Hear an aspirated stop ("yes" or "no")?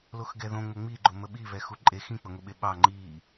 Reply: no